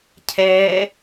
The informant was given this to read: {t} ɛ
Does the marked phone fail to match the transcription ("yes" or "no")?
yes